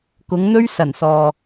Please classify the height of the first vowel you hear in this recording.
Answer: high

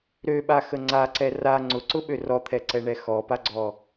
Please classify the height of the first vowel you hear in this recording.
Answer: mid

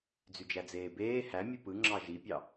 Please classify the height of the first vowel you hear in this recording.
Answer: high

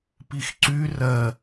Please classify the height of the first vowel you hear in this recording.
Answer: high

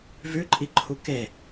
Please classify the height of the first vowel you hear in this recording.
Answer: high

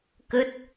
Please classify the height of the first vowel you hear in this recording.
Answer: mid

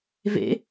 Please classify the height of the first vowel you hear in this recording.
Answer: mid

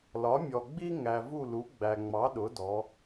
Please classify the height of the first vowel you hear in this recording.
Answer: low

